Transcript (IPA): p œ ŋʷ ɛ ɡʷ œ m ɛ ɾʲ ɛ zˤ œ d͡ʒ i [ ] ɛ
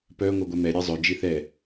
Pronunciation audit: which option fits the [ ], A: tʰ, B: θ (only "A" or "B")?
B